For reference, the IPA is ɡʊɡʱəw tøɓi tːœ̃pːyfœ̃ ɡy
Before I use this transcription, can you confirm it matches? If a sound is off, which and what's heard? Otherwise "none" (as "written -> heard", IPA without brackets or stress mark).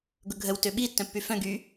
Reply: none